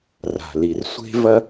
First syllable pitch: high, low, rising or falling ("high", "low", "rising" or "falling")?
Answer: low